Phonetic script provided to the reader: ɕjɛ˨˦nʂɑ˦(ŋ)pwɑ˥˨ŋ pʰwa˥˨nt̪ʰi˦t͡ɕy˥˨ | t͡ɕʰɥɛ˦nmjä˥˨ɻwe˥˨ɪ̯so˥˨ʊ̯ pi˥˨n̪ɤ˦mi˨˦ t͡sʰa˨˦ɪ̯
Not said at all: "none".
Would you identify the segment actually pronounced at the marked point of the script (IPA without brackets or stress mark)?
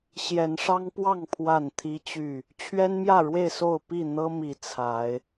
ŋ